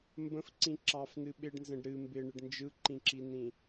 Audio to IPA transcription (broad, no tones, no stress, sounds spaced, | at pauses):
m b ə̃ f ǀ ĩ ǁ ɑ f n ɨ ɓ ɪ ɖ n z ə̃ ɖ ɾ ɨ m b ɪ ɳ ɪ ɖ n d͡ʒ ɯ ǃ ĩ ǁ i n ĩ